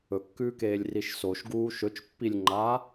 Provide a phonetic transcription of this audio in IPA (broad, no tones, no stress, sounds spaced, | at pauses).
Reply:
ɵ kː ʉː k eː lʲ r i ʃ s o ʃ ɡ uː ʃ ɵ t͡ʃ pː i lʲ ŋ͡ǃ aː